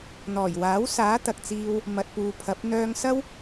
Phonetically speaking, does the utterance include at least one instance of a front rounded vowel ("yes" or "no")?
yes